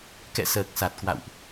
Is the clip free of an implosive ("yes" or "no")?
yes